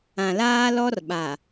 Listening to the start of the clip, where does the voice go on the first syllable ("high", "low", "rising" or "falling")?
low